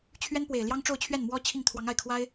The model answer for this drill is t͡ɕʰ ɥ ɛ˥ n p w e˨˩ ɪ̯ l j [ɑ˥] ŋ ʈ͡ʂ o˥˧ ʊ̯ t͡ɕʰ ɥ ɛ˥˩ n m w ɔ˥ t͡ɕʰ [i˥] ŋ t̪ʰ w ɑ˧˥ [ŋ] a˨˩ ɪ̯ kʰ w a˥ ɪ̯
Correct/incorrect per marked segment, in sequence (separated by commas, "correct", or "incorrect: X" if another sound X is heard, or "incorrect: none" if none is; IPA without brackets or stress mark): correct, incorrect: i˥˩, correct